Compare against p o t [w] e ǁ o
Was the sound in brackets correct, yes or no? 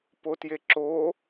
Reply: no